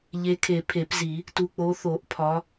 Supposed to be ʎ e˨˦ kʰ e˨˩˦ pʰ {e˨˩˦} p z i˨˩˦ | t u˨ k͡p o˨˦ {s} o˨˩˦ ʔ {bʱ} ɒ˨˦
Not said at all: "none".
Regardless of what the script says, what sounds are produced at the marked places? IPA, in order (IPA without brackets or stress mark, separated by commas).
e˨˩˦, θ, pʰ